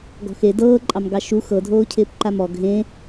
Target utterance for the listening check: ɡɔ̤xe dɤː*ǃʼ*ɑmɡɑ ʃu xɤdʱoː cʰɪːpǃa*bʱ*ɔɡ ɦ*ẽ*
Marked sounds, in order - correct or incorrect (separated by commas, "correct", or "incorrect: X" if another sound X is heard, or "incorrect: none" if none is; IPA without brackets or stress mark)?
correct, incorrect: m, correct